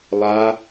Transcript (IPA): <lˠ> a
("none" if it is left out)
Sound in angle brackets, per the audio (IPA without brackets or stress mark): lˠ